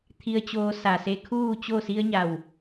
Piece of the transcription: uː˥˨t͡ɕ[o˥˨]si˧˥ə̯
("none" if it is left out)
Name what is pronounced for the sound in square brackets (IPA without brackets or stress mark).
o˥˨